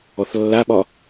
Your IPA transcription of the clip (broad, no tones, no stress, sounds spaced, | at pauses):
ɔ θ lː a ɓ ɒ